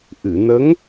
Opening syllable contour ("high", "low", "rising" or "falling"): low